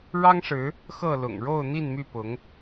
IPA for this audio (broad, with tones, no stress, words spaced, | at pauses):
ɻɑ˦ŋʂɻ̩˨˦ | xɤ˥˨lʊ̰˨˩ŋ ɻo˥˨ʊ̯ n̪i˥˨nmy˥˨pʊ˨˦ŋ